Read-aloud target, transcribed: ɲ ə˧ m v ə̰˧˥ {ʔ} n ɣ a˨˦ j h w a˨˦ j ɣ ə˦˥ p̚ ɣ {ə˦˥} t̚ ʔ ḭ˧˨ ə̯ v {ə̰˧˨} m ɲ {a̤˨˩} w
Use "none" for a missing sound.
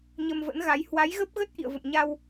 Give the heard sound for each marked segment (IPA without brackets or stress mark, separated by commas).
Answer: none, ə˦˥, ə̰˧˨, a˧